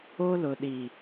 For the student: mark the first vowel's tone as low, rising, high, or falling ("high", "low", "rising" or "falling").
high